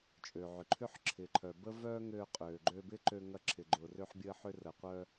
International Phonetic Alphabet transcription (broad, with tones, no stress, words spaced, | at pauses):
t͡ʃʼø˩ʕʏ˩ǃʰʏ˥ħ ǁʰɪː˩ǃʰœ˩bə˥ vœː˥ ŋøː˧qʼøː˩ ɡ͡ǃøː˧bɪ˥ǃø˧ ŋɐ˧ǁʰɪ˩ɡ͡ǃʊː˩ rø˧ħbʲəː˧ħʏ˧ rəː˩qʷœː˧